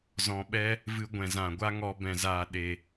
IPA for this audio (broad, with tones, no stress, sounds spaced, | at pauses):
z ɔ̃˧ ɓ ɛ˦ | v ɨ˧ ɡʷ ɛ̃˨ z ã˨ ɡʷ a˦ ŋ ɔ˧ b ɛ̃˨ z aː˨ ɗ e˨